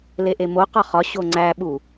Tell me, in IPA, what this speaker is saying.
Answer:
l e ʔ e m o q ɒ χ ɒ ɕ o ŋ͡ǀ æ ɓ u

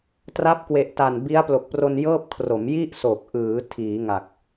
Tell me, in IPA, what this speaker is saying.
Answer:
t r a˦˥ p̚ k w e˨˩ ʔ t a˨˩ n b i˦˥ a̯ p l o˨˩ k̚ p r o˧ n j ɤː˥˩ p̚ kʰ r o˩˦ m j i˥˩ ʔ s o˨˩ k̚ ʔ ɯː˩˦ tʰ iː˩˦ ŋ a˨˩ k̚

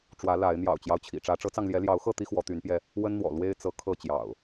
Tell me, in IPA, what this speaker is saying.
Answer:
ʈ͡ʂ w ä˨˦ l a˨˦ ɪ̯ n̪ j ɑ̰˨˩ ʊ̯ t͡ɕ j ɑ˦ ʊ̯ t͡ɕʰ ḭ˨˩ ʈ͡ʂ ä˨˦ ʈ͡ʂ ɤ˨˦ t͡s ɑ˧ ŋ l j ɛ˨˦ l j ɑ˨˦ ʊ̯ x ɤ˥˨ t̪ i˦ x w ɔ˨˦ t̪ y˨˦ n p j ɛ˧ | w ə˦ n n̪ w ɔ̰˨˩ l w e˦ ɪ̯ t͡s ɤ˨˦ kʰ ɤ˥˨ t͡ɕ j ɑ̰˨˩ ʊ̯

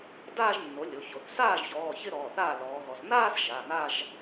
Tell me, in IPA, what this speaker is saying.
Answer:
d aː˥˧ ʒ nː o˩˥ lʲ o˩˧˩ ç o˩˧ θ s aː˥˩ ʒ ç ɔː˩˧˩ ç ɪ˥˧ ɾ ɔː˩˧˩ θ aː˥˩ l ɔː˩˧ ɣ ɔ˩˧ s n aː˥˧ s ʒ a˩˧˩ n a˥˧ ʒ

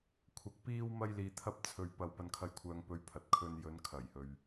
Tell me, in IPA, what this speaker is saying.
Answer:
kʷʰ ɐ˧ k̚ p iː˥ w m ɐ˥ j l iː˧ t̪ʰ ɐ˥ p̚ t͡sʰ ɵ˧ ɥ p ɐ˨ w p ɐ˨ n kʰ ɐ˨ j kʷʰ œː˨ ŋ p ɵ˧ ɥ pʰ ɐ˨ t̚ kʰ ɵ˧ n j ɵ˨˧ n kʰ ɐ˨˩ j h ɵ˨ ɥ

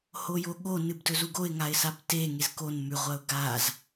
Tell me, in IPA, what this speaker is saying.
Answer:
h o j o ɠ o n ɨ b d ɵ z u ɡ o ɪ̯ ŋ a ɪ̯ s a b t e ŋ e z k o n m ʉ ʁʷ ɐ ʊ̯ ɡ a z

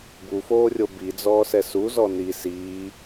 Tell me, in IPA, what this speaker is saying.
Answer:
b u f oː rʲ o b i d͡z ɔː s ɛ s u z ɔ n i s iː

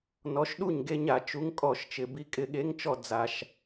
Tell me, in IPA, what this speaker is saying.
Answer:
n ɔ˨˥ ʃ ɗ u˥˩ ɲ ɡ e˦ ɲ a˧˩˧ t͡ʃ u˨˥ ŋ kʼ ɔ˧˩˧ ʃ t͡ʃ ɪ˩ b i˧˩ kʼ ɪ˧˩˧ ɠ e˨˥ ŋ t͡ʃ ɔ˧˩ d͡z a˩ ʃ

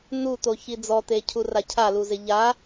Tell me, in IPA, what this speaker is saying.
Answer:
n u t̪ o ç i d͡z ɔ t̪ e cʰ u r a cʰ a l u z ɪ ʎ a

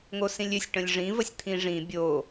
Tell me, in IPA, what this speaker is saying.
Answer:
ŋ o s ĩ lʲ ʏ sʲ ʈ ə̃ lʲ ʐ ĩ v ə sʲ t̪ʰ ĩ ʐ ĩ bʲ o

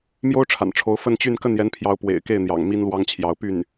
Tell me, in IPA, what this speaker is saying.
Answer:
m j o˥ ʊ̯ ʈ͡ʂʰ a̰˨˩ n ʈ͡ʂʰ o˧˥ ʊ̯ f ə˥˧ n t͡ɕ y˥˧ n k ə˥˩ n j ɛ˧˥ n pʰ j ɑ˧˥ ʊ̯ p w ḛ˨˩ ɪ̯ k e˥˩ ɪ̯ n̪ j ɑ̰˨˩ ŋ m i˥ n l w ɑ˥ ŋ t͡ɕʰ j ɑ˧˥ ʊ̯ p y˥˩ n

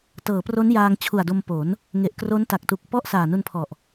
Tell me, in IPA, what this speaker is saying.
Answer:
t ɤː˩˦ p r o˦˥ n j aː˧ ŋ t͡ɕʰ u˨˩ a̯ d o˧ m p o˩˦ n | ŋ e˨˩ ʔ k r o˦˥ n t a˨˩ k̚ t u˨˩ k̚ p ɔ˥˩ ʔ s aː˨˩ n u˧ n pʰ ɔ˨˩ ʔ

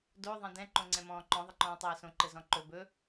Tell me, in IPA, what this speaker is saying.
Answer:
d o ðˤ ɛ̃ d ɛ̃ ǃ õ ŋ͡ǀ ɛ̃ m ɔ̃ː ǃ ɔ̃ ðˤ ɪ ǃ ɔ̃ː tˤ ɛː s õ ǃ ɘ z ɔ̃ ǃ ɵ b ɵ

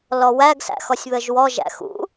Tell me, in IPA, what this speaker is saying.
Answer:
l ɔ w æ ɡ s æ̰ x ɔ sʲ β ə ʒ w ɔ ʒ æ̰ x ṵ

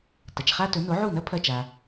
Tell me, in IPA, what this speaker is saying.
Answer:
t ɐ˩ t͡ʃ χ a˥ t ɵ˩˥ n o˩˥ ʕ u˥˩ n ɐ˥ pʰ ɐ˥˩ t͡ʃ a˩

